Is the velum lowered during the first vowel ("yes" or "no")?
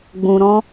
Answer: yes